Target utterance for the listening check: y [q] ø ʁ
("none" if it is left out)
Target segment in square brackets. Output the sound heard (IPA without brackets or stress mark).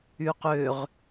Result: q